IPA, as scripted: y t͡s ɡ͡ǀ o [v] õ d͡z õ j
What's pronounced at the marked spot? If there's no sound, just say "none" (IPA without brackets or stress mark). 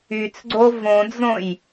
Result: v